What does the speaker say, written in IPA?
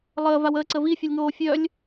lˠ əː v a w əː ǀ ə v i fʲ œ lʲ ŋ oː fʲ œ lʲ

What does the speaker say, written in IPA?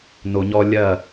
n o˨ ɲ ɔ˦ lʲ ɐ˦˨

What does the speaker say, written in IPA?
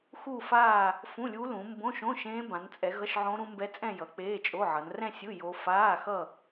x u˥˧ f aː˥˧ | f ũ˧˥˧ lʲ u˦˥ l ũ˨˦ m b õ˧˥˧ ʃ õ˧˥˧ ʃ ẽː˦˥ b ã˨˦ n t͡sʼ ɛ˨˦ ɣ ʌ˧˥˧ ʃ ʕ õ˦˥ ɾ ũ˦˥ m b ɛ˦˥ t͡sʼ ɛ̃˥˧ j ʌ˨˦ k͡p e˧˥˧ t͡ʃʼ o˧˥˧ ʕ ʌ˨˦ n r ɛ̃˥˧ sʲ ɯ˧˥˧ j o˦˥ f aː˧˥˧ x ʌ˥˧

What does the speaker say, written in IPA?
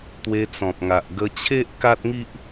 t̪ w e˧ t͡s ɔ̃˨ p̚ ŋ a˨ ʔ ɡ ə˧ t͡ɕʰ e˦ ʔ k a˦ t̚ ŋ i˦ ʔ

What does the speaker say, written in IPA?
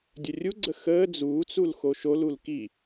dʲ ə rʲ u ɡ͡ǀ ə x əː d͡z uː t͡s u l x o ʃ o l u l k i

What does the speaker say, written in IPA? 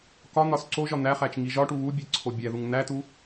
k ɒ n̪ ɒ s ǀ o ʒ ɒ n̪ æ χ æ t͡ʃ ŋ i ʒ ɒ ʈ u β u bʲ e ǀʰ o bʲ æ ð u ŋ n̪ æ t u

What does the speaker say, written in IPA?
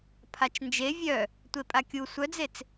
pʰ a t͡ʃ n d͡ʒ e vʲ œ | tʷ e pʼ a kʲ u sʷ œ d͡z e t͡s

